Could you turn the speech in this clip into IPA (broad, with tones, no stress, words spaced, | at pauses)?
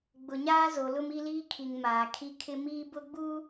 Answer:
ɡ͡bʊ˨ɲaː˦zo˨lʊ˦m i˦liː˦kʰi˨ŋ maː˨kʰi˦kʰɪ˦ miː˦bʊ˦ɡ͡bu˦